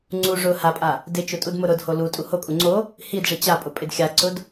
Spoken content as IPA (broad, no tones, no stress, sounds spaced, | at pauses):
ŋ͡ǀ u ʐ ʊ h a pʼ a | d ɪ t͡ʃ ʊ tʼ u d m ʊ ɾ ʊ d h o l u tʼ u h o kʼ u ŋ͡ǀ o | h i d ʐ i t͡ɕ a pʼ ʊ pʼ ɪ d xʲ a ǀ ʊ d